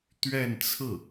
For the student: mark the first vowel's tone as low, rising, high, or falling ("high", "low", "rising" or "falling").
falling